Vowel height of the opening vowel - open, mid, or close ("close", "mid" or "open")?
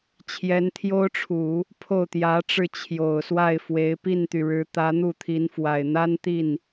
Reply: mid